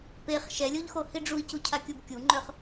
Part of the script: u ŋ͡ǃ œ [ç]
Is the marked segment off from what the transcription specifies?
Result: yes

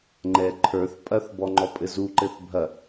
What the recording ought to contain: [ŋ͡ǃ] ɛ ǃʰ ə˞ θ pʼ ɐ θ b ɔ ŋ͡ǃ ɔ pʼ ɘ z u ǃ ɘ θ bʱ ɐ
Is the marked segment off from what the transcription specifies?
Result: no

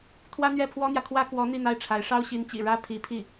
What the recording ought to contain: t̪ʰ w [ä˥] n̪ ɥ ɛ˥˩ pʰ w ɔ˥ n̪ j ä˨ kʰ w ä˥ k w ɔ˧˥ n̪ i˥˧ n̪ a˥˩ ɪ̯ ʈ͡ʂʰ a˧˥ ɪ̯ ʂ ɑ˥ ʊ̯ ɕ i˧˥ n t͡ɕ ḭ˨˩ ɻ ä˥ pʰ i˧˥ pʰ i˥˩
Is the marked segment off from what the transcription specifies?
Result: no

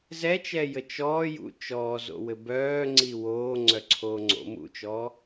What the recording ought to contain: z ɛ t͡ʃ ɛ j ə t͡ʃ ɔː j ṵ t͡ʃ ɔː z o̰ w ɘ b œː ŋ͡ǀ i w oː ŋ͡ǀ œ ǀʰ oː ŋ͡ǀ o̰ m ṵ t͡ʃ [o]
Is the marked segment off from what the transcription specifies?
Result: yes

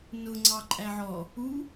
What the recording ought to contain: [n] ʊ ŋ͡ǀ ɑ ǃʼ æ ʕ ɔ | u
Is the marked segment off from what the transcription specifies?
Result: no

